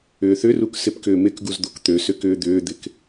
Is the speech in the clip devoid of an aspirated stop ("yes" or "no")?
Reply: yes